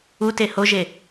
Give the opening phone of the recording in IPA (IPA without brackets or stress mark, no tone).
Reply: u